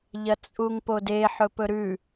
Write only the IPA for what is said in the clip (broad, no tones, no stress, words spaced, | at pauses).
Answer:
ʎɐt͡sʼuŋpode ħɵpɵɾʉ